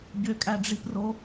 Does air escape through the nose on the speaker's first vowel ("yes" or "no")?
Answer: no